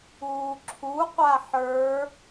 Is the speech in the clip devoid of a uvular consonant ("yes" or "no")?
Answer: no